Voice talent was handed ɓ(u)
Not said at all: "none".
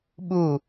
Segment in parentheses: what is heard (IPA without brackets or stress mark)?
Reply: u